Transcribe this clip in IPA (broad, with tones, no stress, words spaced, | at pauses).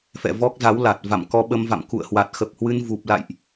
fɛ̰˧˨vɔ˦˥k̚za˨˦w la˨˩t̚ va̰˧˨mkɔ˧ɓə˧mva̰˧˨m kṵ˧˨ə̯hwa˨˩t̚xə˨˩p̚hwɨ˧n vu˨˩p̚ la̰˧˨jʔ